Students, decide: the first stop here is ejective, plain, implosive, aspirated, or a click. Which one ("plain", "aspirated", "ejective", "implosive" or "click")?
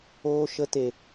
plain